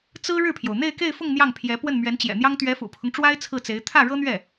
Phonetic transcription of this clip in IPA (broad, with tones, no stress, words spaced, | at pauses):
t͡sɹ̩˥ ɻɻ̩˥˩pʰjo˩ʊ̯ n̪e˥˧ɪ̯ke˥˧ɪ̯fʊ˥˧ŋ n̪jɑ˥˩ŋpʰjɛ˧˥ pwə˥˩nmɥɛ˧˥nt͡ɕjɛ̰˨˩n̪jɑ˥ŋ t̪ɥɛ˧˥fṵ˨˩pʰʊ˦ŋʈ͡ʂwa˥ɪ̯ t͡sʰɹ̩˥˩t͡se˧˥ɪ̯ t̪ʰä˥˩ɻɤ˥n̪ɥɛ˥˩